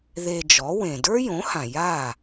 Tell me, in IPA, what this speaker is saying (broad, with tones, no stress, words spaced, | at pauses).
ðe˧d͡ʒɔ˩˥wẽ˩ də˞˥jõ˩˥hã˩ ja˥˩